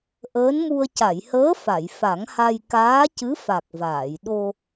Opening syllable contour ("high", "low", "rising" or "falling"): rising